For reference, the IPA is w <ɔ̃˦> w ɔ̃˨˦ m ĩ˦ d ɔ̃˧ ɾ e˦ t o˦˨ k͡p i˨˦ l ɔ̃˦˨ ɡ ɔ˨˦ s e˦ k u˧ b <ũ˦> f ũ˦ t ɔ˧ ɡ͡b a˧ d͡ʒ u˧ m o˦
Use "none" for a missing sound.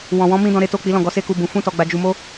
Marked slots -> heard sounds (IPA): ɔ̃˨, ũ˧

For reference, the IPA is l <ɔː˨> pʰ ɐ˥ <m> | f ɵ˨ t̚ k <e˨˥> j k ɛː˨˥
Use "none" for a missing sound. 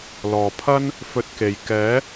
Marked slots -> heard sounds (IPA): ɔː˨˩, n, e˨˩

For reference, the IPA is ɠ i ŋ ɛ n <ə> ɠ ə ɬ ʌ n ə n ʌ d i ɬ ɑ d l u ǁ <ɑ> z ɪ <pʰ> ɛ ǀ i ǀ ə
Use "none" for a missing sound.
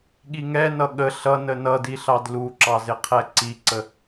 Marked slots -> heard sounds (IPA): ʌ, ɑ, qʰ

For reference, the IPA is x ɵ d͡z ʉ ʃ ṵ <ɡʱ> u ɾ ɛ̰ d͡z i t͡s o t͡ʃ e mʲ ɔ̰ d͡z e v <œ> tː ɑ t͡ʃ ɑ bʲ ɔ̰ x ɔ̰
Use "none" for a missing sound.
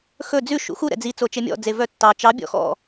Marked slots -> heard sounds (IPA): x, œ

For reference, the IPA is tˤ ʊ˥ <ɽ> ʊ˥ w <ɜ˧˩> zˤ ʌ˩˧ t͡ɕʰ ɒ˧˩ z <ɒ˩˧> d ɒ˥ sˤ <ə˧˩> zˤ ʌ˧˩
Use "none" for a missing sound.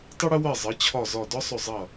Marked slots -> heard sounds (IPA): ɽ, ɜ˧˩, ɒ˧˩, ʊ˧˩

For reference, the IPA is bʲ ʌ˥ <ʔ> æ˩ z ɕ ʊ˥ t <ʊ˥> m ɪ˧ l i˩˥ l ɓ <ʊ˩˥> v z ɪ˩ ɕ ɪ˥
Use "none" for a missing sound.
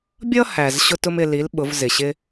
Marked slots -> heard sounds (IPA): h, ʊ˥, ʊ˩˥

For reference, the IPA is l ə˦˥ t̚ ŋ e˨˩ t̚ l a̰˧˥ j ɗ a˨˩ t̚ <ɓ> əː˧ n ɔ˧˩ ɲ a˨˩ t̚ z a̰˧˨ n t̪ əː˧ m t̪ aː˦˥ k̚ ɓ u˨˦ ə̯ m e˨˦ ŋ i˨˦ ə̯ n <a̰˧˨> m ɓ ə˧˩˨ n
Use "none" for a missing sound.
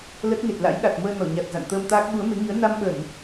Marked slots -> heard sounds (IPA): m, a˧

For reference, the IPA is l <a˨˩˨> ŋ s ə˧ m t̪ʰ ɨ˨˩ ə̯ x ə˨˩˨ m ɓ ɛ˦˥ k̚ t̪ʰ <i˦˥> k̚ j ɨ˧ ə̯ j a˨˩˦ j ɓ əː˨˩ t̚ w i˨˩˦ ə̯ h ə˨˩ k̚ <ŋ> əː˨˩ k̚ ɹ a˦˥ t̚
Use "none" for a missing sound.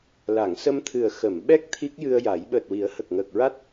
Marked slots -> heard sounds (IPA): a˨˩˨, i˦˥, ŋ

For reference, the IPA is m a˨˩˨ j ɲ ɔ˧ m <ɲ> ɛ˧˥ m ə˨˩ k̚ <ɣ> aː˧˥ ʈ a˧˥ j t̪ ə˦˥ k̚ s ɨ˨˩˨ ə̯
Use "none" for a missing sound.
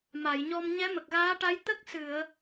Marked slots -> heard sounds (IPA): ɲ, ɣ

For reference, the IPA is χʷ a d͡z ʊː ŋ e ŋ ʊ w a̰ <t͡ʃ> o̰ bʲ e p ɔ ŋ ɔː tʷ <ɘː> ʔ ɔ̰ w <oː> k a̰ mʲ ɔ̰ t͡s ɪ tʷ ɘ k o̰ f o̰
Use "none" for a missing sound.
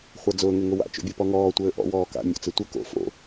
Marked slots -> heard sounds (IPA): t͡ʃ, ɘː, ɔː

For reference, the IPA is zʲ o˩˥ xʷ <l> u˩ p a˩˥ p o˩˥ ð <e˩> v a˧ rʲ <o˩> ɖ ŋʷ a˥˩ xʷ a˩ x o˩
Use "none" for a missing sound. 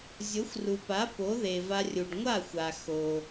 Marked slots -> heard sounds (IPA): r, e˩, u˩

